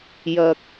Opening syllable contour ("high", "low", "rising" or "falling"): low